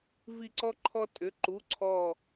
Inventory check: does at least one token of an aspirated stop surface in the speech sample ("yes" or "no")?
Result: yes